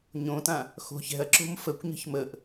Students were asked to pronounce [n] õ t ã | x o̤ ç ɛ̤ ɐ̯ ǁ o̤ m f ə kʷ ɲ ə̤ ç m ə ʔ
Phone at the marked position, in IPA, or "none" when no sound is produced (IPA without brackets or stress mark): ɲ